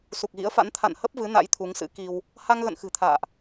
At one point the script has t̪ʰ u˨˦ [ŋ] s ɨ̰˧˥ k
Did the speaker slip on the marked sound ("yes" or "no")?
no